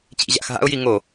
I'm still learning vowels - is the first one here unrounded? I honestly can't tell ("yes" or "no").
yes